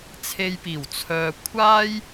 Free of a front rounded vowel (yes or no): no